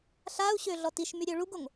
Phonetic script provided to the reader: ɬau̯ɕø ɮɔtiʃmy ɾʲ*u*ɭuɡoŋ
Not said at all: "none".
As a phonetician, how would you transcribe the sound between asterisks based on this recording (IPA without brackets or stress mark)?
ø